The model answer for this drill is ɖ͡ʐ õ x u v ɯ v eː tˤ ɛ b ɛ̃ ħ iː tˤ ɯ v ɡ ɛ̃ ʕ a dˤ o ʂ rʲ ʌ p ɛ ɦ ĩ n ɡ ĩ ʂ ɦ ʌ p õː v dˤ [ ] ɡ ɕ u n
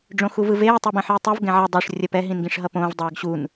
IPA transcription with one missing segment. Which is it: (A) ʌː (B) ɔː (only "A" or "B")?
A